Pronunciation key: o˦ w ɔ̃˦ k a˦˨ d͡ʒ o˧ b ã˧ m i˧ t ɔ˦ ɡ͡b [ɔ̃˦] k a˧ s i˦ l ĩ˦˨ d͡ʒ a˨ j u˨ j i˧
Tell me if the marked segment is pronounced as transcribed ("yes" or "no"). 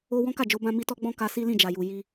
yes